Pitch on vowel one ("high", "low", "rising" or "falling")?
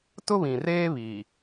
high